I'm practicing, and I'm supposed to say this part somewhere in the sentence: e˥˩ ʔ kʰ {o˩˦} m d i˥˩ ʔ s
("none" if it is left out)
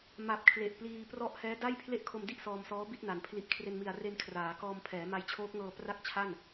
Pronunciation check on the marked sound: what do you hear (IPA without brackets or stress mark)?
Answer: o˧